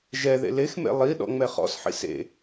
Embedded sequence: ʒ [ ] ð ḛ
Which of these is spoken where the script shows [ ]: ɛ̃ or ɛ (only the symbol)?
ɛ